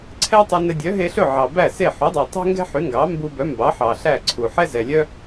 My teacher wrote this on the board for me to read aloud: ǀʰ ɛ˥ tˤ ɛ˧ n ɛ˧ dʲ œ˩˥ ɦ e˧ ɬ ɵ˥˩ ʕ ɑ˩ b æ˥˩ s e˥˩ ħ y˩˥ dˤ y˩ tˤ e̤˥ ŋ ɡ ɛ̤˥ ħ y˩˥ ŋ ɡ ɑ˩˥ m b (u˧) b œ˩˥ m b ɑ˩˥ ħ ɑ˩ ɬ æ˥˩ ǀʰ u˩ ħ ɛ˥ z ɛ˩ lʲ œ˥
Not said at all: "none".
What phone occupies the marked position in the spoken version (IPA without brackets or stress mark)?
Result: u˧